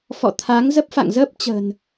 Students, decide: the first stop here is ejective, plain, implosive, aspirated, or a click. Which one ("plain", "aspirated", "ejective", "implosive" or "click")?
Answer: aspirated